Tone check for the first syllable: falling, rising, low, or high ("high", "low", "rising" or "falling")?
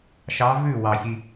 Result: rising